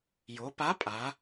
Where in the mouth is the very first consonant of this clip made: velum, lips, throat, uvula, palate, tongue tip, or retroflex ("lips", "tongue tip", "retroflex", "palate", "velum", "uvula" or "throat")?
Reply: palate